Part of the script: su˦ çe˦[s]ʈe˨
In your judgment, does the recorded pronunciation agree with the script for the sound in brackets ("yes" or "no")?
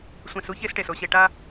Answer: yes